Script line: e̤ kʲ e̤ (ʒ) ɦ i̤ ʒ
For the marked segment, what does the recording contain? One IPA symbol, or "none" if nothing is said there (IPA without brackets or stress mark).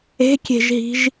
ʒ